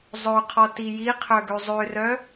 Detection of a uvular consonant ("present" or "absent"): present